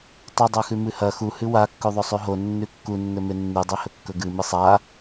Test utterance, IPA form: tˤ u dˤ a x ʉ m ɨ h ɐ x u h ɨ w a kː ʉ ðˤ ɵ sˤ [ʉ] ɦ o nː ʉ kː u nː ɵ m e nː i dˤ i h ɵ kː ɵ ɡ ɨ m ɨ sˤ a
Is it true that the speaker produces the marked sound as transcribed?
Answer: yes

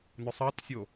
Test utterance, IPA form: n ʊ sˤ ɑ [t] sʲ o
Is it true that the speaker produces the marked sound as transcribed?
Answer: yes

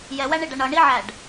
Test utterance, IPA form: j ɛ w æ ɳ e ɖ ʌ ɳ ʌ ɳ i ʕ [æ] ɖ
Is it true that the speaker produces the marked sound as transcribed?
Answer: yes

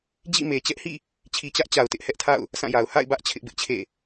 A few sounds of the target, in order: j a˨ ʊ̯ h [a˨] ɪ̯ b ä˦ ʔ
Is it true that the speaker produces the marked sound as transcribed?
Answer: no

